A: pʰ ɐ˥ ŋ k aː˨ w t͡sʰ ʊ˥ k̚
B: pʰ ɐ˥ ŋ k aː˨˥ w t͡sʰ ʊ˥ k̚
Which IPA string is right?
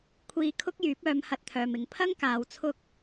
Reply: A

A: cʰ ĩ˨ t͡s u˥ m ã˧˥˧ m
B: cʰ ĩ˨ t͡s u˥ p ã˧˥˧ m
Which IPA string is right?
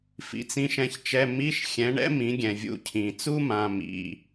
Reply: A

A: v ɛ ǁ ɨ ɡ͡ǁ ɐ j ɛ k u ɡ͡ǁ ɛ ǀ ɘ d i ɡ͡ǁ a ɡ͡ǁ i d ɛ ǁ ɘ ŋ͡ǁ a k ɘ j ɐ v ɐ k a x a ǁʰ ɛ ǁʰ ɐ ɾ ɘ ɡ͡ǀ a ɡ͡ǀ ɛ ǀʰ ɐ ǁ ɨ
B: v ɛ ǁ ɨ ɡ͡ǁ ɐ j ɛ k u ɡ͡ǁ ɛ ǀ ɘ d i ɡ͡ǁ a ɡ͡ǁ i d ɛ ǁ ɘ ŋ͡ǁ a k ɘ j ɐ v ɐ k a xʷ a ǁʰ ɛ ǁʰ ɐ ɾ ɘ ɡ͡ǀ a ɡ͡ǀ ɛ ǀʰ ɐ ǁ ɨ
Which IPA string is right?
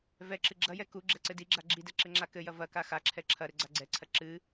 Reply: A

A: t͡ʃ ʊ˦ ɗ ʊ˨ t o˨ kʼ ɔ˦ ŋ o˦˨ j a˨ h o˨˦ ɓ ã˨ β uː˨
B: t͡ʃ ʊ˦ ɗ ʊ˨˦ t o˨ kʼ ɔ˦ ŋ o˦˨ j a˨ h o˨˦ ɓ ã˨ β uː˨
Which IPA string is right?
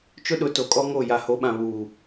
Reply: B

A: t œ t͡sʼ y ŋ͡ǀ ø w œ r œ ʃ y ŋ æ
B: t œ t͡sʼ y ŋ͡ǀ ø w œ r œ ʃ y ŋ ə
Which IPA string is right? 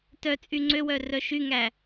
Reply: A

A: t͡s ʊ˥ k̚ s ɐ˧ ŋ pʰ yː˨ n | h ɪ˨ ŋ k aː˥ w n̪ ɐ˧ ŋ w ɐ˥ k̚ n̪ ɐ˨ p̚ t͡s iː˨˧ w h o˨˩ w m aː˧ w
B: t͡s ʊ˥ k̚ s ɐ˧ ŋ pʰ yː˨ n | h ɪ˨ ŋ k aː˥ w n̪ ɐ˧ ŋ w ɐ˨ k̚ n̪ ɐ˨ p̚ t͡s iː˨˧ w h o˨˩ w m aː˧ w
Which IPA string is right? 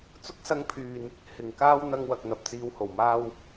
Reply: B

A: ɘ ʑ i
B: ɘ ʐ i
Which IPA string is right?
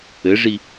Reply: B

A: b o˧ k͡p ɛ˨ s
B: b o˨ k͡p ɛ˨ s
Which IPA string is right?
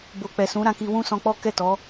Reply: B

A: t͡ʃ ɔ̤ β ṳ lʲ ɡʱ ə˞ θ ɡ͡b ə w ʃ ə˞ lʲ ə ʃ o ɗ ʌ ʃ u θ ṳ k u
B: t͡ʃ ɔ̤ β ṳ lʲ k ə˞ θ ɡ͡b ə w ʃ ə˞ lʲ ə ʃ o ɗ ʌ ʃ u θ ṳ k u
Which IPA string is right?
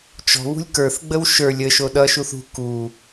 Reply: B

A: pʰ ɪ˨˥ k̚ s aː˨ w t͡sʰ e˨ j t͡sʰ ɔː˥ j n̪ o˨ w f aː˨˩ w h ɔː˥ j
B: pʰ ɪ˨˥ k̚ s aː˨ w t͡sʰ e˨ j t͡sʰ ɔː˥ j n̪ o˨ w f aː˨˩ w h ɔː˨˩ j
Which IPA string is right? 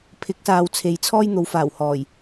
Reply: B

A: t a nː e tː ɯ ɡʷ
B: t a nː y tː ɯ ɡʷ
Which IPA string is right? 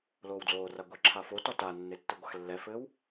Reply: A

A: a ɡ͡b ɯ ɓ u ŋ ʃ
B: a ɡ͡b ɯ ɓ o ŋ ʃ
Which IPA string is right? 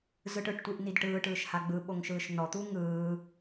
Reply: B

